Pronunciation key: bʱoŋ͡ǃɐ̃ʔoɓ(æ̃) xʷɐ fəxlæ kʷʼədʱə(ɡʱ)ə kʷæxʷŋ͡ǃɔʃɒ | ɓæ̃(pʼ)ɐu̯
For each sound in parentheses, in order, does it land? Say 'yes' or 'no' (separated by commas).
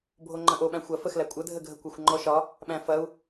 yes, yes, no